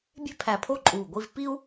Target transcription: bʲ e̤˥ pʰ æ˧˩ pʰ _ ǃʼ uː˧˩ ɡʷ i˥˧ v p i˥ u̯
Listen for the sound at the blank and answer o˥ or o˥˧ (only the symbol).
o˥˧